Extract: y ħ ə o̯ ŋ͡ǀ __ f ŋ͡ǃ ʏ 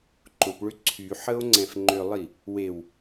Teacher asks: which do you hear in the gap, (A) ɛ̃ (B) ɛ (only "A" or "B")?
A